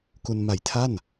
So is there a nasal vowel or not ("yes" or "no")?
no